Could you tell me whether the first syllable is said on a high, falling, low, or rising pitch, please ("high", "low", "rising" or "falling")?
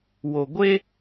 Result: low